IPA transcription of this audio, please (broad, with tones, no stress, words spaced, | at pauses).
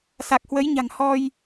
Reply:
sa˨˩k̚hwə˨˦jɲa̤˨˩ŋ hɔ˧j